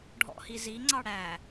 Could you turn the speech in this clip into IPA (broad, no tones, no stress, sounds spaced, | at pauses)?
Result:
ɖʱ ɔ̰ h i z i ŋ͡ǀ ɑ ɽ æ